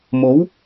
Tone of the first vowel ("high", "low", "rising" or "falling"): rising